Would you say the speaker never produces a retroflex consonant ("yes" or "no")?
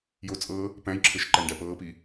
no